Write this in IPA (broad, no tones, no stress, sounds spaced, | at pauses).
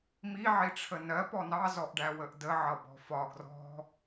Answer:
m i ʕ i ʈ͡ʂʰ ə n ɜ p ɔ n ɑ z ɔ ʔ ɖ æ w ə ʔ d ə ʕ ʌ b ɔ̤ f ɒ ɡ r ɔ̤